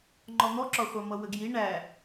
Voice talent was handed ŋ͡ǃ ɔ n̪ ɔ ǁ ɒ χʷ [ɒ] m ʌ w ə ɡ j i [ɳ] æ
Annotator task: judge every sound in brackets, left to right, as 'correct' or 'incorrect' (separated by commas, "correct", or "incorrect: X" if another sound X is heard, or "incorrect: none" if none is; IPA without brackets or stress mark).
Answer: incorrect: ɑ, correct